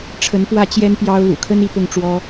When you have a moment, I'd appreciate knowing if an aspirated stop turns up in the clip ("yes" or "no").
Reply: yes